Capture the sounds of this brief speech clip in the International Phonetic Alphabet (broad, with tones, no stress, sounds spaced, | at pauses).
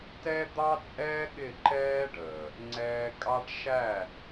t ɛ˦ d̪ ɑ˦ t͡sʼ ɛː˦ ɠ ɪ˦˨ ǃ ɛː˦ ɖ əː˨ | ŋ͡ǀ ɛː˧ kʼ ɑ˦ ʈ ʃ æ˦˨